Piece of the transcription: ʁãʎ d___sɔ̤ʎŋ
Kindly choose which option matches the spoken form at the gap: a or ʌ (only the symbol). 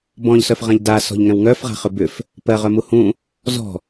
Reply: a